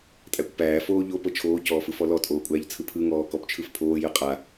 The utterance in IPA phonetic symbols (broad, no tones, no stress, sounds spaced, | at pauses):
tʼ æ kʷ p æː f oː ʎ o p ɤ t͡ʃʰ oː c ɔː f ɯ f ɔ l ɔ tʼ oː kʷʼ æː ʎ t͡sʰ ɯ pʰ ɯ ŋ ɔː k ɔ p t͡ʃʰ ɯ f pʰ oː j ɯ qʼ a